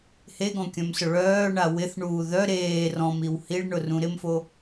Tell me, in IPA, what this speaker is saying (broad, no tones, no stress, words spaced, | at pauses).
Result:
heɡɔ̃kʲœ̃msʊ ɭœːɳa wɪθɳuː ðœ ɾeː rɔ̃miw hiɭɳʊrũ ɾɪmfo